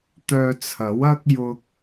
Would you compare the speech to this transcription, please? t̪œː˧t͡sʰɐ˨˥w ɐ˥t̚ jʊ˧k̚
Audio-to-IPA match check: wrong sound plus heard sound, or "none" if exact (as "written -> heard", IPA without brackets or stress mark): t̚ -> k̚